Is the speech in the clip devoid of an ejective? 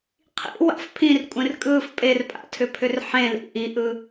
no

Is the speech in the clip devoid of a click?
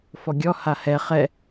yes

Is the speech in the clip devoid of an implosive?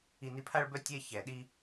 no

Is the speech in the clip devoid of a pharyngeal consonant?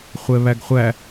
yes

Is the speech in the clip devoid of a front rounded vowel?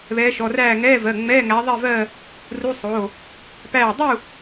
yes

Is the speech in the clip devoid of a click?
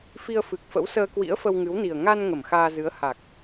yes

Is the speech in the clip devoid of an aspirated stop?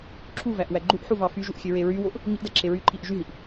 no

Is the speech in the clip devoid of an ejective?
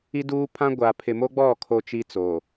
yes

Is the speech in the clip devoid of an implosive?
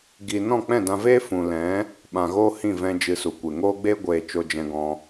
no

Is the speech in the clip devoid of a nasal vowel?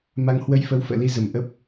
yes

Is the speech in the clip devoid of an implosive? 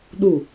no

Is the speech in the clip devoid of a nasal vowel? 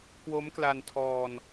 yes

